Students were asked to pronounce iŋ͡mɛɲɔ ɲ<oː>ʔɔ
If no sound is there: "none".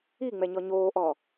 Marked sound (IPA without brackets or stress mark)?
oː